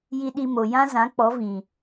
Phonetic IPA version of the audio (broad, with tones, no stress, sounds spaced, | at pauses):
j i˧ ɗ i˧ m o˨ j ã˦ z ã˨˦ k͡p ɔ˨˦ v ĩ˨